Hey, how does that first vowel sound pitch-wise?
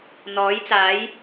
rising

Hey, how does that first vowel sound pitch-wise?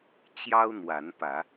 high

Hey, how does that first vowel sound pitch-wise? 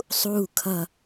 falling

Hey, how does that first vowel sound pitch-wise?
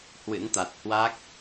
rising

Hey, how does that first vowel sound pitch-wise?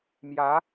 rising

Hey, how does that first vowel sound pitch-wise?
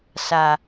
low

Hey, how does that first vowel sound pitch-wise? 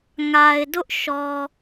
low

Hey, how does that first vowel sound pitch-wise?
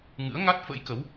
rising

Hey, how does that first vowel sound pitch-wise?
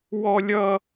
high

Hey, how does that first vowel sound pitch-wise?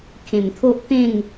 low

